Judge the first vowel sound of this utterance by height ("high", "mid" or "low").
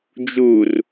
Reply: high